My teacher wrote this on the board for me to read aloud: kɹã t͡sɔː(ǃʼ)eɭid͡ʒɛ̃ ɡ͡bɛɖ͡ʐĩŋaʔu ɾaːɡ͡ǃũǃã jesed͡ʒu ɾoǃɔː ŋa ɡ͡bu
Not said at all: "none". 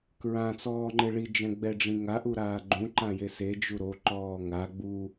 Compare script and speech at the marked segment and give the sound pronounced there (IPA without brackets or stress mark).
ŋ͡ǃ